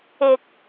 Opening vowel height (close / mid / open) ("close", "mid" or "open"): close